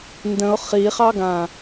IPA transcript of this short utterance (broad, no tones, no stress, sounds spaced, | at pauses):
n d ə̃ ʊ̯ χ i χ ɑ ɡ ã